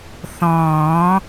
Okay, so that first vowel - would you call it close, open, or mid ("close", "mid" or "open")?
mid